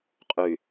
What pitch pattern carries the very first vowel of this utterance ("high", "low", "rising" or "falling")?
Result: low